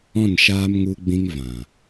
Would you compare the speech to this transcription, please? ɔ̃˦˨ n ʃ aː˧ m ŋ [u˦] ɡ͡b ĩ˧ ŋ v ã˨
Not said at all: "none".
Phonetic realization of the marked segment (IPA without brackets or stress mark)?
u˧